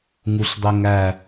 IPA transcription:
ŋuɬdˤeŋæ

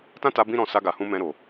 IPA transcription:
tã˦ta˧ bĩ˦ɾɔ̃˧ sa˧ɡa˨hũ˧ mɛ̃˧ɾo˨

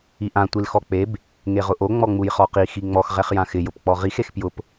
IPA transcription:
iʔã tʷilxɔk͡peb | ŋeʁʊʔo ŋ͡mɔŋ͡mujχɔqi xiŋ͡mɔx ʁɛχjãxɪ jʊpk͡pɔʁix expjʊp

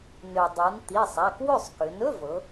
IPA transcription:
nø˩dˤɤ˩˧n t̪i˩˧˩sˤa˩˧˩k wɵ˥˩sˤ kø˩˧nɵ˧˥˧vɤ˩˧

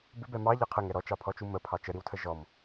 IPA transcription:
bɪbɛ mɑ ʎɑqʰəŋɛ ɾɔt͡ʃɑpʰɔt͡ʃu məpʰɑ t͡ʃəɾiwtʰə ʒɔm

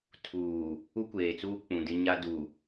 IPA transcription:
tʰuː˨ | u˦kʷeː˨t͡suː˦ k͡pũ˨dɪ˦ ɲa˦du˨

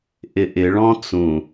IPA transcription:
ʔɪʔɪɭɔ̃ t͡sũ

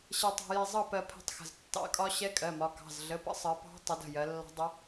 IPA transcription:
ɕɛ˧tˤɑ̤˧jɛ˧ zˤʌ˥˨pɜ˧ pʰɛ̤˧tˤxə̤˩˧˩z tːɑ̰˧˥kʼɒ˧˥ ɕɛ˧˥kʼɜ˩˧˩mɒ˩˧˩ kɑ̤˩˧˩zɮə˩˧˩pə̰˧˥sˤɜ˩˧ pɑ̤˧˥ tˤə˩˧d ə̤˩˧˩jɜ˩˧lːɑ̤˧˥dˤʊ˧˥

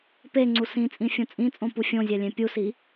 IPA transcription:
peŋ͡ǀu sĩt͡sʼĩfʲõ t͡sʼĩt͡sʼõpu fʲõzʲælʲẽ pʲusi

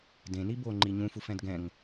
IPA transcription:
dẽni boŋ͡ǃi ɲũfufɛ̃d ɡɛ̃ŋ

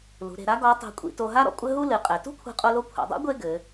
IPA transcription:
lṳ˩˧ɾe̤˩˧ɾa˧˥ ɡɔ˧˥tˤɛ̤˧kʷʼḭ˧ to˧ɦa˥ ɾɔ̰˧kʷʼɘ˥ɦu˥ lɨ˩˧qʼɛ˩˧ tṳ˥kʷʰɛ̤˧qʼo˧lo˧ kʷʰɛ̰˩˧dˤɛ̰˧˥ ɡʷe˥ɡɘ˩˧

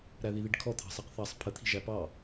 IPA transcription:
ɾæðiðiɖkʰɔ t̪ʰɑ̤sɑqθɑsˤ pʰə t̪ʰi̤ʒæpɑ

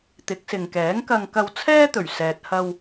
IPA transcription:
t̪ɪ˨˥k̚sɪ˨ŋkɛː˨˥ŋ kɐ˧ŋkɐ˧w t͡sʰɛː˥t̪ɵ˨˩ɥ sɛː˨t̚hɐ˧w

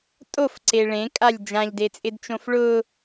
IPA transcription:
tʼofǀe ɭẽkʼalʲ d͡ʒãʎdet͡sʼɪdt͡ʃõf ɭʊ

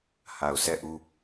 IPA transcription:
ha˨ʊ̯sʰɛ˦˨ʔu˦

